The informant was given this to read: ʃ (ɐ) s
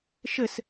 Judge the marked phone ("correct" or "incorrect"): incorrect